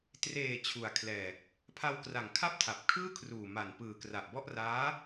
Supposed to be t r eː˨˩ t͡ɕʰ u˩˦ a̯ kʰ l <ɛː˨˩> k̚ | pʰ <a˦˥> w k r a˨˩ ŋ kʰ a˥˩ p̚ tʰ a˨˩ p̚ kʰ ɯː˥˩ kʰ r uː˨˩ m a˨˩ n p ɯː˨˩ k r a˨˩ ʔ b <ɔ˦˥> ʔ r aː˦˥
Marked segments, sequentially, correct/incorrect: correct, incorrect: a˧, incorrect: ɔ˥˩

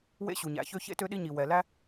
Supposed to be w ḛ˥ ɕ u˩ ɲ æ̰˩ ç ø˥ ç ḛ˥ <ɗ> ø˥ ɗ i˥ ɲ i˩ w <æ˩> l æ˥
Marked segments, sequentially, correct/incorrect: incorrect: t, incorrect: ɛ˩

